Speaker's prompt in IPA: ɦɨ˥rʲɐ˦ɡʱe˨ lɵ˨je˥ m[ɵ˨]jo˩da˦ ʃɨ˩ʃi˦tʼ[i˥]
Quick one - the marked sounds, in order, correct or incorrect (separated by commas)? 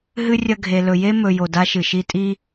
correct, correct